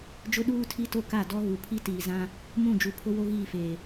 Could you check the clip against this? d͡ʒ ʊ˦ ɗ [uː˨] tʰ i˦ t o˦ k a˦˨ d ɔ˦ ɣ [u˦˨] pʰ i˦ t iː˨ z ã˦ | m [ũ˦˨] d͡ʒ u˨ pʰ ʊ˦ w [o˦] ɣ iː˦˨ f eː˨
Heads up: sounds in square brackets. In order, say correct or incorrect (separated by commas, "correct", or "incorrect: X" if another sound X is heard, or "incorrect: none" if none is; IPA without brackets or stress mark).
incorrect: uː˦, incorrect: u˨, correct, correct